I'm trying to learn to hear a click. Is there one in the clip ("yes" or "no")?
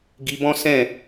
no